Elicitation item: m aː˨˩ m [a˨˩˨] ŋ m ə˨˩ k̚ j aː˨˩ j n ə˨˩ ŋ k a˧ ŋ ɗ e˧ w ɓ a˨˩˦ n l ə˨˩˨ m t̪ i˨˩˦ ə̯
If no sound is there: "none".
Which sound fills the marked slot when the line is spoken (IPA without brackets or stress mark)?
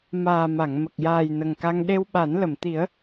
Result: a˨˩˨